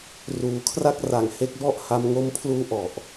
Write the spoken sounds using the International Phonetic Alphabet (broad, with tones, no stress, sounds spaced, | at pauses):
r uː˩˦ kʰ r a˦˥ k̚ r a˨˩ ŋ h e˦˥ k̚ b ɔ˥˩ ʔ h a˧ m ŋ o˧ m pʰ l uː˦˥ ʔ ɔ˨˩ ʔ